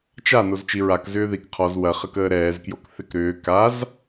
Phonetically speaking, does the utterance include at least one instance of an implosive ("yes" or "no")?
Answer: no